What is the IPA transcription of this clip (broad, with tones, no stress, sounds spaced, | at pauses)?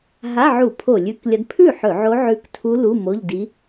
ɦ a˧˥˧ ʕ u˧˩˧ pʰ o˧˩˧ lʲ ʉ˧˥ k lʲ ɐ˧˥ d pʰ ʉ˥˩ ħ ɵ˧˩˧ ʕ o˧˥ ʕ ʉ˧˥ k tʰ u˧˥ l u˧˥˧ m o˧˥˧ ʎ d i˧˥